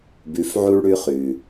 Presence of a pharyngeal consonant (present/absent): present